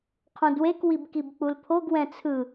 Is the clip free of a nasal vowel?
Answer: no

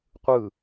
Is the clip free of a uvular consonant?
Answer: no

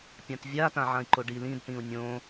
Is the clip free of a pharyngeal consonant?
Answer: no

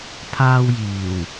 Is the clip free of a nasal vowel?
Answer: yes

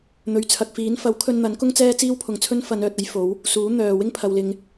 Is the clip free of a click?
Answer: yes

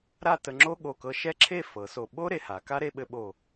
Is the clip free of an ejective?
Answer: yes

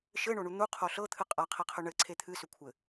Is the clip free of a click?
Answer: no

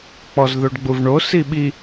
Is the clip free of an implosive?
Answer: no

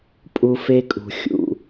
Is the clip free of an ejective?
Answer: no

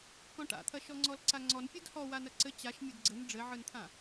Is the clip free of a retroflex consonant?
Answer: no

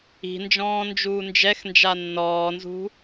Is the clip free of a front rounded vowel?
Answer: yes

